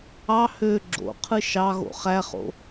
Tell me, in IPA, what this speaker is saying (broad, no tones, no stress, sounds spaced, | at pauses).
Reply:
ɑ h ø ɡ͡ǁ o̰ qʰ ɯ ʃ ɑ ɣ o̰ χ æ χ o̰